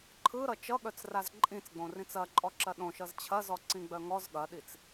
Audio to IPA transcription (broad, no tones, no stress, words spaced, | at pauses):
ǃʰɯɾʌ t͡ʃʌɠœt͡sraz ǃʼĩt͡sɡ͡bõrĩt͡s ɐǃʼɔǁɐ ɗõʃʌz t͡ɕʰɐzɔǀĩɡ͡bœ ŋɔz ɠɐɗit͡s